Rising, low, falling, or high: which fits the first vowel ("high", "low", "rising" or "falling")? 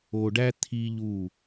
low